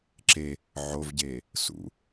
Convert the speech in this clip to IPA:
ǁe | ʕovɟeː | sṵ

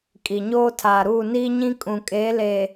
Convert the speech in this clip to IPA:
kʼi˨ɲoː˦ tʰaː˨ɾuː˦˨ niː˦ɲĩ˦ kʼũ˨kʼeː˨˦ leː˨

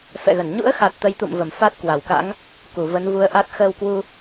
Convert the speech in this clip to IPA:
fɛ̰˧˨ɣə˧˩n ɲṵ˧˥ə̯xa˨˩t̚ t̪ə˨˦jt̪ṵ˧˨mvə˧˩m fa˦˥t̚ kwa˧˩wka̰˧˥ŋ | ku˧˩və˨˦nvu˨˦ə̯ʔa˦˥t̚ xəː˧wkwu˧

